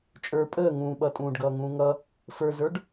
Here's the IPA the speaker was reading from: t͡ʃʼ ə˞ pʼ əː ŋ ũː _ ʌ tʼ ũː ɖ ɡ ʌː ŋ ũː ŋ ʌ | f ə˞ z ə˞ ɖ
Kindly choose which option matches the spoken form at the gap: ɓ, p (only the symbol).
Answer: ɓ